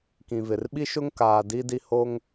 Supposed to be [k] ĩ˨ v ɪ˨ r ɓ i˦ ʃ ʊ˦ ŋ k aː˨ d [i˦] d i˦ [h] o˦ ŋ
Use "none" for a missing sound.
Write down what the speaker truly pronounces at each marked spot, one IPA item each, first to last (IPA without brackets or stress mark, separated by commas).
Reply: k, i˦, h